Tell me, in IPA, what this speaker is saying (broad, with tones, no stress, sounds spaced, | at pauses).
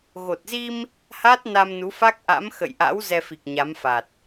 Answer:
ɣ o˨˩ t̚ z i˧ m | h aː˦˥ t̚ n a˧ m n u˨˦ f a˦˥ k̚ ʔ a̰˧˥ m x ə̰˧˨ j ʔ a̰˧˥ w z ɛ˧ f i˨˩ k̚ ɲ a˨˦ m f a˨˩ t̚